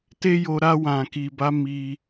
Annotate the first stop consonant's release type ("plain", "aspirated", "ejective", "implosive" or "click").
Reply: plain